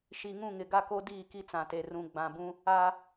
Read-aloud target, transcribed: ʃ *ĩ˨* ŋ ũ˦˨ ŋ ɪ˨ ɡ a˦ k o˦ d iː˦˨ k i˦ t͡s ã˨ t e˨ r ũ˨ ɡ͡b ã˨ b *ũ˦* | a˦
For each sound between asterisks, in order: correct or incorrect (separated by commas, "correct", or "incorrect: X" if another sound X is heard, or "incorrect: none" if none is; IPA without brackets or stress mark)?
incorrect: i˨, correct